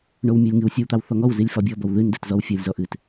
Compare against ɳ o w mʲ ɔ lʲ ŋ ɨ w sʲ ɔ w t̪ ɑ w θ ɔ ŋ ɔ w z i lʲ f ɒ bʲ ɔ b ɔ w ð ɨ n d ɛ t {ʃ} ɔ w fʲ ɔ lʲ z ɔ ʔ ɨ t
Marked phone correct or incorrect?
incorrect